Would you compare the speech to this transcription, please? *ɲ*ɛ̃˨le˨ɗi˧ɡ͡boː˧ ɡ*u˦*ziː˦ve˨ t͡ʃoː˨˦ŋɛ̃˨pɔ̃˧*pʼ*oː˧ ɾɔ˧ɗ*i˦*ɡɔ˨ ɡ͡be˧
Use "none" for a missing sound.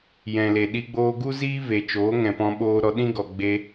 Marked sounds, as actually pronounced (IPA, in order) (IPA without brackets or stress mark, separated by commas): j, u˦, ɓ, ĩ˦